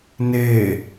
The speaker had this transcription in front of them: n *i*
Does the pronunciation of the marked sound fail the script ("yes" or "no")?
yes